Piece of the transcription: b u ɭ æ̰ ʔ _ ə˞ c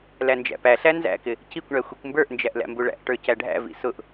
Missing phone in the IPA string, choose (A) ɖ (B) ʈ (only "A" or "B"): B